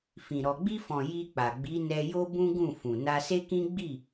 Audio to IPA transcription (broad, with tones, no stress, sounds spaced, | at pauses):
f ĩ˨ ɾ ɔ˨ ɡ͡b i˧ f ɔ̃˨ j i˧ k͡p a˨ ɡ͡b i˨˦ n ɛ˧ j o˦ b ũ˦ ɡ ũ˦˨ f ũ˨ n a˧ s e˦ k ĩ˦ ɡ͡b i˦˨